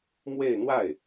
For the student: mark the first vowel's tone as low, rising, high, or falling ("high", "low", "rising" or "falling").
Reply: falling